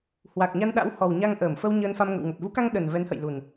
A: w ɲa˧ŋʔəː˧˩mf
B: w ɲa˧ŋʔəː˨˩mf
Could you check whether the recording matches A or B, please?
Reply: A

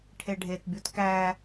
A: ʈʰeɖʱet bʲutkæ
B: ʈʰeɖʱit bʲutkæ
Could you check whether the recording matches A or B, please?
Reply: A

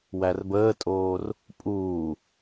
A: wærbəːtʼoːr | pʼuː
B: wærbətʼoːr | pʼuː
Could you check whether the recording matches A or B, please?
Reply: A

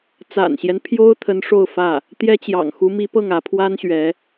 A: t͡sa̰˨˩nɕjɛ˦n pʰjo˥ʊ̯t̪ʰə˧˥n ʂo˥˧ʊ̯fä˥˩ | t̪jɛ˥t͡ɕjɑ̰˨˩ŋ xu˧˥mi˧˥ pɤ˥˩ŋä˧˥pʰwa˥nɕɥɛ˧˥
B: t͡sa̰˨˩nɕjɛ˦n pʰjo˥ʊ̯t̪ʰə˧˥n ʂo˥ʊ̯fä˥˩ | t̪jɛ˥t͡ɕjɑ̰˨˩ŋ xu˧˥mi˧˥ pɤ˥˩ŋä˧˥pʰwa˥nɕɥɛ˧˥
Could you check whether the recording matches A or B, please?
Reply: A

